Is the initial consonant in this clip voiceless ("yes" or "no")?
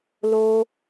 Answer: no